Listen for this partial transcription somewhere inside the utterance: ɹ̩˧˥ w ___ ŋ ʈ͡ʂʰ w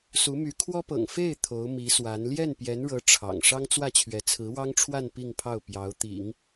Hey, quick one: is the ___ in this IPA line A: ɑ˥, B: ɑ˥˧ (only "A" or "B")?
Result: A